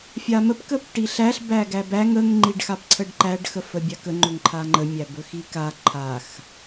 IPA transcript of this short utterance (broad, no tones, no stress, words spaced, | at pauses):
fʲaməp kəpʈiɬæɬ bæɡæbæŋ əŋ ŋ͡ǃiɖxapǀʰəɖǃæɖ xəfəbʲakə ŋ͡ǃɵŋǃʰaŋ͡ǃə mʲæbɵxika ǃʰax